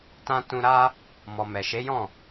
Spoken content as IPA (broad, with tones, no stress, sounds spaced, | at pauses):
t ã˧ t ũ˧ ɾ a˦ | m ɔ˨ m ɛ˨ ʃ e˨˦ j ɔ̃˦˨